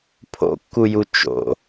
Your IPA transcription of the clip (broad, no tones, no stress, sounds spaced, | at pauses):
pʰ o̰ kː u j u t͡ʃ o̰